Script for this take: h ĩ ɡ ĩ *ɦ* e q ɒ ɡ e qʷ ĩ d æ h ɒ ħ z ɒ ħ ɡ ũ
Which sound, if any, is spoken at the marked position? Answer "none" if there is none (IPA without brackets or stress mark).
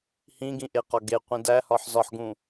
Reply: ʔ